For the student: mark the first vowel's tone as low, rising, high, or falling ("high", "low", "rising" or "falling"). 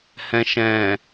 low